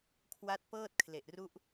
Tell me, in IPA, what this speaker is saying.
kʰ w a˦˥ t̚ p ɤː˥˩ t̚ kʰ l e˨˩ ʔ r u˦˥ ʔ

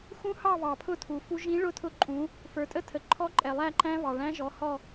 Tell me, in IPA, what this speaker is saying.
x ũ˦˥ h ɑ˥˧ β ɑ˩ pʰ ʊ˥˧ tʰ u˩ f u˦˥ ʒ ĩ˦˥ ɭ ʊ˦˥ tʰ ʊ˦˥ ǃʼ ũ˨˦ | f ə˞˩ tʼ ə˥˧ tʰ ə˩ ǃʰ ɔ˦˥ ǃʼ ɛ˩ lˠ æ˥˧ ǃ æ̃˦˥ β ɑ˩ ɭ æ̃˦˥ ʒ ɔ˨˦ h ɔ˥˧

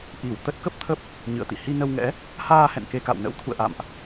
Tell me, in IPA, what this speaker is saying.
ʔ i˧˩ w t̪ ə˦˥ t̚ k ə˦˥ p̚ t̪ʰ ə˦˥ p̚ | ɲ ɨ̰˧˨ ə̯ t̪ ḭ˧˨ h i˧ n ə˧ w ŋ ɛ̰˧˥ | h aː˧ h ɛ̰˧˨ n k e˧ k a̰˧˨ w n ə̰˧˥ w t̪ʰ ṵ˧˨ ə̯ ʔ a̰˧˨ m ʔ

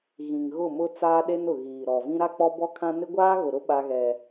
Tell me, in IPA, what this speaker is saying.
ɣ ĩ˨ ŋ ɣ ʊ˦˨ m ʊ˦ t͡s aː˦ ɗ e˦ n ʊ˨ ɣ iː˨ ɾ ɔ˨ v ĩ˦ ɾ a˦ k͡p ɔ˦ b ɔ˦ kʰ ã˦ n ɪ˦ ɡʷ aː˦ ɣ ʊ˨ ɾ ʊ˦ ɓ a˦ ɣ ɛ˦

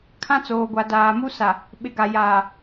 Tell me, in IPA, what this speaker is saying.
kʰ ã˦ t͡s oː˨ ɡʷ a˨ d aː˨ m u˦ s a˨ | ɓ ɪ˨ ɡ a˨ j aː˨

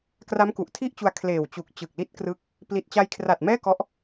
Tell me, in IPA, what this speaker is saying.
k r a˦˥ m k u˨˩ ʔ tʰ i˥˩ ʔ t͡ɕ u˧ a̯ kʰ l eː˨˩ w t͡ɕ u˨˩ k̚ t͡ɕ ɯ˨˩ k̚ l i˦˥ t̚ k r ɯ˦˥ k̚ | p l i˨˩ t̚ t͡ɕ a˧ j kʰ r a˨˩ t̚ m ɛː˥˩ k ɔ˦˥ ʔ

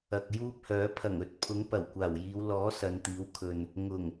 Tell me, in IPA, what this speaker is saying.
ɐ˨ k̚ j uː˥ p̚ h œː˨˥ pʰ ɐ˨˩ ŋ ɵ˨˥ t̚ pʰ ʊ˨˥ ŋ p ɐ˨˩ w kʷ aː˨˩ w j iː˨˧ w l ɔː˨˥ s ɐ˨˧ n t̪ iː˨˥ w kʰ ɵ˨ n | ŋ ʊ˨˩ ŋ

